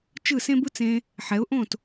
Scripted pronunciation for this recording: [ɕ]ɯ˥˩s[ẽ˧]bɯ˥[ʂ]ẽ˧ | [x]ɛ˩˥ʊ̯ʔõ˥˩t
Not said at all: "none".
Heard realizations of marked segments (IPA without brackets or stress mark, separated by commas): t͡ʃ, ẽ˥, t͡s, ħ